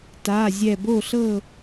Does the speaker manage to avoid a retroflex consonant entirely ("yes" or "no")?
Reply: yes